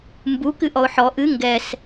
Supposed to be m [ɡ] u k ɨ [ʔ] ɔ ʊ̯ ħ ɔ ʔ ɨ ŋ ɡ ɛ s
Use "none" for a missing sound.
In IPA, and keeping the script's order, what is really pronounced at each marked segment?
b, ʔ

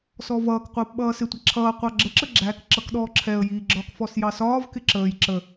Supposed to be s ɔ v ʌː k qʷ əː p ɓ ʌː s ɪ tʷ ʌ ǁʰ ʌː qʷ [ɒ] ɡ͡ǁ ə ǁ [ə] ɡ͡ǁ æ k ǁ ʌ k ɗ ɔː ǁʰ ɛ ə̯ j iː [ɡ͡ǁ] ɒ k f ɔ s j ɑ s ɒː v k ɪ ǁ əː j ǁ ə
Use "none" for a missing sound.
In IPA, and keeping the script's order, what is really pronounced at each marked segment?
ɑ, ə, ɡ͡ǁ

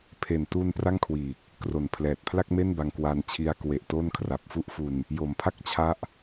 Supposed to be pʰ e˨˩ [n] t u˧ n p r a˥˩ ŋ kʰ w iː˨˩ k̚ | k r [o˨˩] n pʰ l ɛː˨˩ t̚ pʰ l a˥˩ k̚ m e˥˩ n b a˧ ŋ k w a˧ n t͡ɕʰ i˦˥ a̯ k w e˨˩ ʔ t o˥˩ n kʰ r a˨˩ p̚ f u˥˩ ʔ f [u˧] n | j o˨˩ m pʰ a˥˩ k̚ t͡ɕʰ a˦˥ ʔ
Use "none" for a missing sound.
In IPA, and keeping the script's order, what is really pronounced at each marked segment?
n, o˨˩, u˧

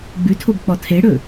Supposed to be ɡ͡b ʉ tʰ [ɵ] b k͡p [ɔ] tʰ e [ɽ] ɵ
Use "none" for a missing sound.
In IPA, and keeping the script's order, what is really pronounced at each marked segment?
o, ɔ, ɽ

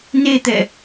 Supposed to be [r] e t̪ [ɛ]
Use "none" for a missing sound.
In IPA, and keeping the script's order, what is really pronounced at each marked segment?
n, ɛ

